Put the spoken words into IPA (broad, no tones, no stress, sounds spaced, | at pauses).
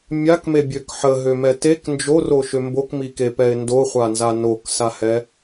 mʲ a k m e bʲ ø k ħ ə ɦ ø m ɛ t e k n d͡ʒ o r o ʃ ø m b o k m i k e p ɛ ɪ̯ n d o χʷ a n z a n o k s a h ɛ